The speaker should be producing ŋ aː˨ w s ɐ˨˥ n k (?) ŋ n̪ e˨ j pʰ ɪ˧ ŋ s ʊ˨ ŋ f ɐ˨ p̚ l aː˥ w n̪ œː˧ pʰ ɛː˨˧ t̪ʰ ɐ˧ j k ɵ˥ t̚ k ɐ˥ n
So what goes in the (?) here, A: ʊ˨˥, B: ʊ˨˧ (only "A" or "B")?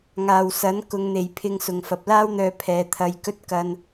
B